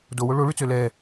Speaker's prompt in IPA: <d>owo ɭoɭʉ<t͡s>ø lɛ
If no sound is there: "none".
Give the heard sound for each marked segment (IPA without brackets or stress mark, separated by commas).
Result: d, t͡s